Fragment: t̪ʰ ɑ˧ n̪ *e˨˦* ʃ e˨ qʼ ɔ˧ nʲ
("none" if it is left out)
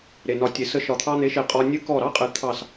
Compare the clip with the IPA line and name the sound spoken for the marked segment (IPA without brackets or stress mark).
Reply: e˨˦